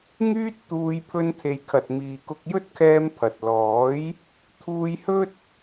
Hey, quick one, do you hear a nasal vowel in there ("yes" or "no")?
no